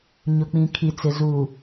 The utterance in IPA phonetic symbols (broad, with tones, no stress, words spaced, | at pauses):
ɲʊ˨k͡pĩ˨kʰi˨t͡sɪ˨ zu˨